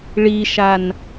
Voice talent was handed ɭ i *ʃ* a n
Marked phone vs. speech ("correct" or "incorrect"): correct